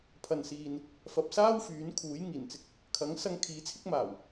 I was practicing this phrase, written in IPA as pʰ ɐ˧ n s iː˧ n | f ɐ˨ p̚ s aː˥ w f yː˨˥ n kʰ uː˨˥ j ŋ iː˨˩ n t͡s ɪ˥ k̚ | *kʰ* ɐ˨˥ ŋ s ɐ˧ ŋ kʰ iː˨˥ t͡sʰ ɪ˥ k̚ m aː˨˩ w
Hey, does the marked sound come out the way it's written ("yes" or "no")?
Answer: yes